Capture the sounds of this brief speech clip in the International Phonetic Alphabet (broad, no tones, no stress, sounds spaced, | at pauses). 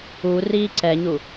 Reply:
u r iː ǀ ɛ ɲ u